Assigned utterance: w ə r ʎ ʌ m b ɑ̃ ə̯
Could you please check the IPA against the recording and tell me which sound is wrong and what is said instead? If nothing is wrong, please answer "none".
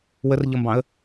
none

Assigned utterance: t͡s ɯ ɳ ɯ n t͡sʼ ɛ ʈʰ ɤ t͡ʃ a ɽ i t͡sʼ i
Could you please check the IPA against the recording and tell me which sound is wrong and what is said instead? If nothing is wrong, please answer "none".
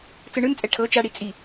none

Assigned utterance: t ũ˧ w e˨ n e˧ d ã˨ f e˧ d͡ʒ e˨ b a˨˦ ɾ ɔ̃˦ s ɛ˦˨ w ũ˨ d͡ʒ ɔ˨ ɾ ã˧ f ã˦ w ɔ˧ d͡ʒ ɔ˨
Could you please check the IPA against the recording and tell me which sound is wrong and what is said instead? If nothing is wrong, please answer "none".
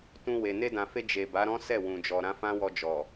none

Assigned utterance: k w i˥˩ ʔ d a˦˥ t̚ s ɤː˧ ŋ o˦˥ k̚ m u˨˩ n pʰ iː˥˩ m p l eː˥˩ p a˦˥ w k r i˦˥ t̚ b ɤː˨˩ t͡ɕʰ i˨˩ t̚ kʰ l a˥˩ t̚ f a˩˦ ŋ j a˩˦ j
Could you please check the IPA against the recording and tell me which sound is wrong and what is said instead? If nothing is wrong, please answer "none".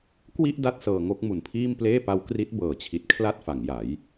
none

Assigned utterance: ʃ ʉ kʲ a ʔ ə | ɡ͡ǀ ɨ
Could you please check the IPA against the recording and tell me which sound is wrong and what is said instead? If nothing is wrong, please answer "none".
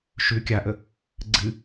none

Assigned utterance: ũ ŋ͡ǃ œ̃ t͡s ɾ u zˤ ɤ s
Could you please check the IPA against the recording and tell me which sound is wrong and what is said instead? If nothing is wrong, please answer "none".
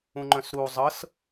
t͡s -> s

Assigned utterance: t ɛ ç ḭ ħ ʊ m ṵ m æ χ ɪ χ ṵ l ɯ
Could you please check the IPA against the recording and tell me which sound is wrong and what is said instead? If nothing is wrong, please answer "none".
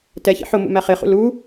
ɯ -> u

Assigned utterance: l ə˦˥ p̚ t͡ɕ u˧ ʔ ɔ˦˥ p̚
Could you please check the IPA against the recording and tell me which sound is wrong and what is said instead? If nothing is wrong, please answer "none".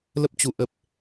ɔ˦˥ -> ə˦˥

